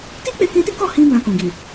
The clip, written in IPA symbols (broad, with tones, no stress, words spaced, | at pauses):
ti˦k͡pe˧kĩ˧ti˦ kɔ˦˨hĩ˧ bã˧kũ˨ɡi˨